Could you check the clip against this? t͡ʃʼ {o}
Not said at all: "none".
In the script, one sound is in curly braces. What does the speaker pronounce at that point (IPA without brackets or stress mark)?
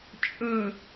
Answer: ɵ